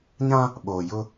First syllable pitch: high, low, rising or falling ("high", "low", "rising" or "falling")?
high